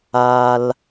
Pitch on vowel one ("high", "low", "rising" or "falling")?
low